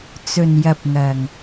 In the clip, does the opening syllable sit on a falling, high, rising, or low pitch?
low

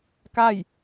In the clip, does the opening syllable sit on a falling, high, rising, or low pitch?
falling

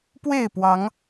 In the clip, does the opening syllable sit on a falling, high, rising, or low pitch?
falling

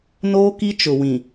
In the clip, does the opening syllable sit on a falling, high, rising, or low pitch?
high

